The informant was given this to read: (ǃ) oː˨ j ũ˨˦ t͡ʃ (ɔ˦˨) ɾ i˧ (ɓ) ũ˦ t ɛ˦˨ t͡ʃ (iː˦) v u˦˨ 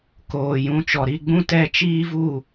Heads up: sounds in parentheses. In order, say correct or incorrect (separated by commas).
incorrect, incorrect, incorrect, correct